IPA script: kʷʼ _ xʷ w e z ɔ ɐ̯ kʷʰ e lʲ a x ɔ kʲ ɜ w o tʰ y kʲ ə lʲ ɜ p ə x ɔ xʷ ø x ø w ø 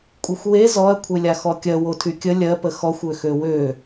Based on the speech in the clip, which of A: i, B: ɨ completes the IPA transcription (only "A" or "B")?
B